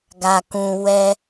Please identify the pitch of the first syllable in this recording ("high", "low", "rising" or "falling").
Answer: low